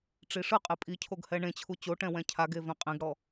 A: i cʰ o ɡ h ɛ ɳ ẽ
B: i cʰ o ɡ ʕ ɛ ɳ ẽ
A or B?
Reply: A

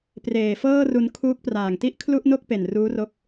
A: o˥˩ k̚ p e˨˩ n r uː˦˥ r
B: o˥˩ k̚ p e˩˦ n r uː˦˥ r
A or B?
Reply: A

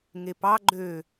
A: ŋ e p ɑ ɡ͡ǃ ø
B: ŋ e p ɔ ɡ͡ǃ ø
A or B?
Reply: A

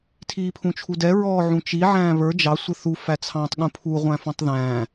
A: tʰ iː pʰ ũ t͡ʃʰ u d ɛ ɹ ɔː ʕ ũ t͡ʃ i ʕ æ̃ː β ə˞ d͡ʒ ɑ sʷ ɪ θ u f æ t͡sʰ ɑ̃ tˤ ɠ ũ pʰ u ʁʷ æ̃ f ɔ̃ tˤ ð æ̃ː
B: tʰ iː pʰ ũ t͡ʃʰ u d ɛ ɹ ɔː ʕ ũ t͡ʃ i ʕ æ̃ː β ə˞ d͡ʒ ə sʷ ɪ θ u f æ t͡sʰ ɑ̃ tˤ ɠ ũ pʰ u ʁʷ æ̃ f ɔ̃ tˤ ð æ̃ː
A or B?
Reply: A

